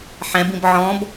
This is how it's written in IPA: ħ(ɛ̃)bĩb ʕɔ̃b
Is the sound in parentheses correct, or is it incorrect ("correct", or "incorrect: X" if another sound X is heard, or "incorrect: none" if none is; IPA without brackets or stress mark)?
correct